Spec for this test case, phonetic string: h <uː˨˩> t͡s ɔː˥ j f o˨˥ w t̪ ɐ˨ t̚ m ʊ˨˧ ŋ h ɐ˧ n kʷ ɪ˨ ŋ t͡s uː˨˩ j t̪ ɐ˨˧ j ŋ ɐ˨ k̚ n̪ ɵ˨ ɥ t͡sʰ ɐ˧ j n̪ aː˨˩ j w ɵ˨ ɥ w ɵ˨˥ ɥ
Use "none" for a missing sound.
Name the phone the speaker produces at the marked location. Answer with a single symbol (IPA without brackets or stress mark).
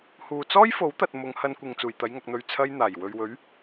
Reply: uː˨